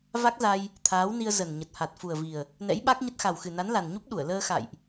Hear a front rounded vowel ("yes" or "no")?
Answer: no